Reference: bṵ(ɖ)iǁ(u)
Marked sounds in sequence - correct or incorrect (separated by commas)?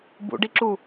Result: correct, correct